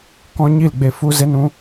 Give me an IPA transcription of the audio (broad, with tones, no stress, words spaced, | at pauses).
kɔ̃˦ ɲi˦˨lɡ͡be˧ fu˦ze˦nũ˦